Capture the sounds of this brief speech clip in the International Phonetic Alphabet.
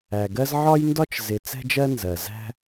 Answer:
æ˩ɡɜ˦z ʕɒ˥jndɒ˥t͡ʃ zɪ˨ t͡sɛ̤˦d͡ʒɜ˦ nzɜ˩zæ̤˦

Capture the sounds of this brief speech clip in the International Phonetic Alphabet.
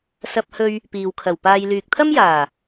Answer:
sɐ˧p̚hɵ˧ɥ | piː˨wkʰɐ˨˩wpaː˧j lyː˨k̚t̪ʰɐ˥mjaː˨˩

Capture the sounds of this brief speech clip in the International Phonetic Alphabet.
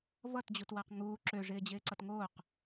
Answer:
vʌtd͡ʑutwaq ŋuː ǁøʐɪːd͡ʑɪːǀʌt ŋoːq

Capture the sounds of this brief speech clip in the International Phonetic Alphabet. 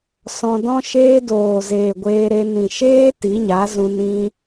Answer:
sɔ̃˧ dɔ̃˦ʃeː˦doː˨zeː˨ ɡʷeː˧ɾe˧ nĩ˨ ʃeː˦ ti˨˦ɲa˨˦zũ˧n ĩ˧

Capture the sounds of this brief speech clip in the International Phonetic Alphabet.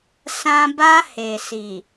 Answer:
sã˦ ba˦he˨ si˨

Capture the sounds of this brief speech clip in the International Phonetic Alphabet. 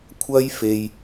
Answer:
kʷʰɐ˥jfe˨j

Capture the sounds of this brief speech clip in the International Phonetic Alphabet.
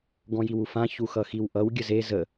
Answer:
ɡɔ̃jiwufã çuxʌxiwʔʌw ɡʲəze zə

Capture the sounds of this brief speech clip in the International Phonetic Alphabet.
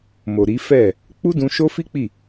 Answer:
mo˨ɾi˨˦fɛ˦˨ | k͡pu˦dũ˧ʃo˦fi˦ k͡pi˦˨

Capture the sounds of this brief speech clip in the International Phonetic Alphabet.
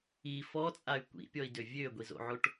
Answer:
i fɔt͡sʼay̯ kʷḭpʲɔi̯dø vʲøɡʷizo̰ʕoʈ

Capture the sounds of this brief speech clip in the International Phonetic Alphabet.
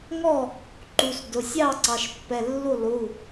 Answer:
ŋɔ˥˩ | ǃu˩˧˩sdʊ˩˧˩ sʲɑ˥˩ ǀɑ˩˧˩ʃpːɛ˩˧˩ lːu˥˩lˠu˩˧˩

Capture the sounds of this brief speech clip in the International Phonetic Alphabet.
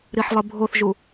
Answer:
ɾiħlˠɨbʱoθʒu

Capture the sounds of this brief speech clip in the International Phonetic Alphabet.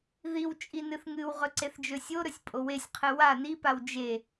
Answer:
ðiw t͡ʃʼinɨθŋɨwʁɵ ǀeθd͡ʒɵsʲoɾɵsʲ pʼowesʲqʰɨ wa nipaw d͡ʒe

